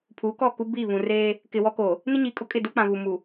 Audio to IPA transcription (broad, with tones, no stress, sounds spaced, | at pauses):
pʰ uː˨˦ k ɔ˦˨ k u˦ b iː˦˨ β ũ˨ r eː˦ | k ɪ˨ w ɔ˦ k oː˨ | n ɪ˦ ɲ iː˨ kʼ ʊ˦ kʼ ɪ˦˨ d u˦ k͡p ã˨ β u˨ m u˨